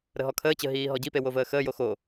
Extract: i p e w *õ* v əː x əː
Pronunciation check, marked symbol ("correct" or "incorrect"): incorrect